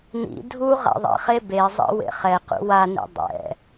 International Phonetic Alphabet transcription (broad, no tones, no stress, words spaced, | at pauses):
nḭ dʱu ʁa̰ðˤḭχe bezˤḭ wḛχɛqṵ wanḭ dˤɛ̰